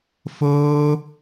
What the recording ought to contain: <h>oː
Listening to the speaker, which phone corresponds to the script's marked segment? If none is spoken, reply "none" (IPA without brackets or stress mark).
f